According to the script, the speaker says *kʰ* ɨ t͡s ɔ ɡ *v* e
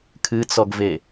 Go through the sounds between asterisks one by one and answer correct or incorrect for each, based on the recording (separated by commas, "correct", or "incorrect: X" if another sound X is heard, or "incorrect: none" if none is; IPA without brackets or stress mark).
correct, correct